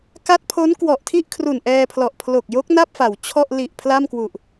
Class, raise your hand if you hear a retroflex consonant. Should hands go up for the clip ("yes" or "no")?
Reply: no